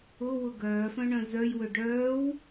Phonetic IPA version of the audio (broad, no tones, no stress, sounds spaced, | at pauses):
ʊ w ʊ ɡ œː f œ̃ ɳ œ̃ z œ j w ø ɖ œː w